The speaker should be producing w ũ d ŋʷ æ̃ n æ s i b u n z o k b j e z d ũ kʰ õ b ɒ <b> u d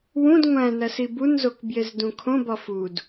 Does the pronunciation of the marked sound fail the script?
yes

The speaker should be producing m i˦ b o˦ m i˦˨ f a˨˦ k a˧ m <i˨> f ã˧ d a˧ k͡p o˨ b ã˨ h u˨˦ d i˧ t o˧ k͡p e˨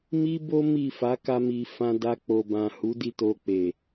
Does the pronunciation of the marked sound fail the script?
no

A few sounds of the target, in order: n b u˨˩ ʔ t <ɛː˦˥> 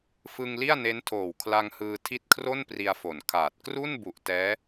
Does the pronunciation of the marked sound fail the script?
no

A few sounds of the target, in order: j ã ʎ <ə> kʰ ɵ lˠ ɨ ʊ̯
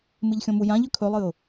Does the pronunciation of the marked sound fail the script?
yes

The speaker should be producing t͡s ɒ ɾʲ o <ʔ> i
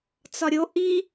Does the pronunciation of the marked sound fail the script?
no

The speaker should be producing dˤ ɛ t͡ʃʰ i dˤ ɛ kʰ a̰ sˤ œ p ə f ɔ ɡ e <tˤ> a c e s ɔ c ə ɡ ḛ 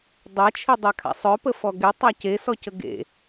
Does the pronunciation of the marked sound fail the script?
no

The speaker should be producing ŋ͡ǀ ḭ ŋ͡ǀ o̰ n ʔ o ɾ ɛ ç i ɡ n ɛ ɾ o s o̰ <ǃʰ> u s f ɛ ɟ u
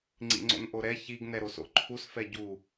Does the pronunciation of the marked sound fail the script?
no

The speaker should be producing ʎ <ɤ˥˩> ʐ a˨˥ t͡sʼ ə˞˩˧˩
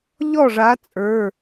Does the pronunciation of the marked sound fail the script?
yes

